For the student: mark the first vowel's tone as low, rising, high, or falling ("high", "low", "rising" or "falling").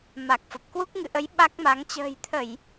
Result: low